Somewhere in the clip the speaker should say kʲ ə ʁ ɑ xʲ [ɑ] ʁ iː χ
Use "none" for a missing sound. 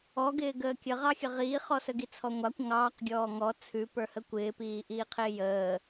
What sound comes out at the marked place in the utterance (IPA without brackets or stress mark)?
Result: ə